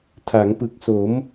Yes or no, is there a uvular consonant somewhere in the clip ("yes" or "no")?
no